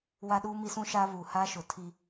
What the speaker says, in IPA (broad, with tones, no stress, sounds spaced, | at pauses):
w a˦ ɗ uː˦ m i˦ s ũ˦ ʃ a˦ β u˨ h a˦ ʃ ʊ˨ tʰ i˦